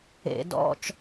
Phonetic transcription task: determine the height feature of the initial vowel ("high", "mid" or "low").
mid